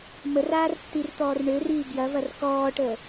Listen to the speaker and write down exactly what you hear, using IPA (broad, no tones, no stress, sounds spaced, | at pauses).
m ə r aː r tː i r t̪ ɔː r ɳ ø r iː ɡ j ɐ v ɐ r k ɔː ʈ əː